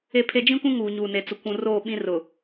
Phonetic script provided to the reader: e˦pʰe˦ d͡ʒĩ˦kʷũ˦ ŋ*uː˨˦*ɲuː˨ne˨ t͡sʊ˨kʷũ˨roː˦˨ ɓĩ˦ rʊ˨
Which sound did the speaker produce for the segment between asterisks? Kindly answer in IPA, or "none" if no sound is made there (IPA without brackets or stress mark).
uː˨